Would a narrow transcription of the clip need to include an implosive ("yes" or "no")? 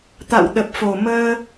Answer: yes